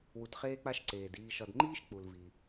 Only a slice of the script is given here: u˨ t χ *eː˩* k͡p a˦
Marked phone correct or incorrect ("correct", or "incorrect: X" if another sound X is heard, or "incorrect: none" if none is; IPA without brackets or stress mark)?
incorrect: eː˦